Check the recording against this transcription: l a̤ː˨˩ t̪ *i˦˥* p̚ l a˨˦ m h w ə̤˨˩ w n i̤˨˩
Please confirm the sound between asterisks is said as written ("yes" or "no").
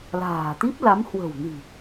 yes